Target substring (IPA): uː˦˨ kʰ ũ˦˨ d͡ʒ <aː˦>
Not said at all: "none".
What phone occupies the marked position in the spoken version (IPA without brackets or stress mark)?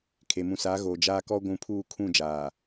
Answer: aː˨